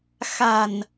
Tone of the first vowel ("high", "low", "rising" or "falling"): low